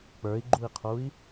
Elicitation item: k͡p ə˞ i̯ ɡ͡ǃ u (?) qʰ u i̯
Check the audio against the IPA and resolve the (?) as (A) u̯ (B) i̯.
B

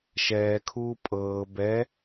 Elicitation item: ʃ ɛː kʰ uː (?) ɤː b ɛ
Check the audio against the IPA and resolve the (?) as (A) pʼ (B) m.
A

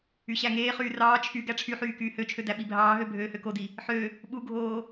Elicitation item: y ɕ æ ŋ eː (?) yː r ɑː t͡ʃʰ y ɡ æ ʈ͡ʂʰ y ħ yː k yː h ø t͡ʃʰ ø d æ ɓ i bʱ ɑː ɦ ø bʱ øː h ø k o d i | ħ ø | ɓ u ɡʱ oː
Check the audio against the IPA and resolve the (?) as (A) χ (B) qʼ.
A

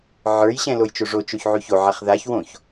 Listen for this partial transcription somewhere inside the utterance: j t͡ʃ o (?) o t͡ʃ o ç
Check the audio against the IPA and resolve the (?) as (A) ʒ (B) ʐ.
B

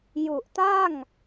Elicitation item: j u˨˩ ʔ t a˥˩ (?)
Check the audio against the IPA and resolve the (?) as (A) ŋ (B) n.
A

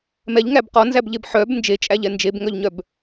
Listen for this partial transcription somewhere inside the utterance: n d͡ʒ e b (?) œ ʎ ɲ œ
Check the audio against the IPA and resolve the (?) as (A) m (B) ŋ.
B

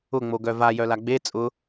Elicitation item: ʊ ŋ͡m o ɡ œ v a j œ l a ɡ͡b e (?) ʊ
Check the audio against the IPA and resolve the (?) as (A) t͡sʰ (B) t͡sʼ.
B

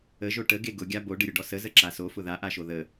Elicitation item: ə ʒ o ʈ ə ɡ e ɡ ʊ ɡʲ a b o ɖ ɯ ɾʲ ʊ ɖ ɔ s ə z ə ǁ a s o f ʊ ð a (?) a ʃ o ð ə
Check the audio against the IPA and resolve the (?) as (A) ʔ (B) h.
A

